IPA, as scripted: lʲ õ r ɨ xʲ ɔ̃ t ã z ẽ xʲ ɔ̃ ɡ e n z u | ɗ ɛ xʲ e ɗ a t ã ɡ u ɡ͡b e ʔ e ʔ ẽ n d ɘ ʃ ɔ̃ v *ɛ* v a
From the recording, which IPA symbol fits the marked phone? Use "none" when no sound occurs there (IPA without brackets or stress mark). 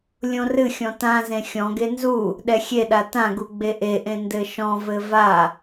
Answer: ɘ